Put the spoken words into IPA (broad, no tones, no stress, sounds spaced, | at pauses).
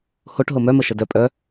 h o ʈ ɦ o m œ m ə ʃ ə d œ pʼ œ